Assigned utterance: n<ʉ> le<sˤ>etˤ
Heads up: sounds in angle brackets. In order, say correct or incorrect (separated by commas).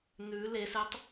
correct, incorrect